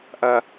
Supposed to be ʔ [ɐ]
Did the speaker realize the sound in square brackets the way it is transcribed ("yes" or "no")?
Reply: yes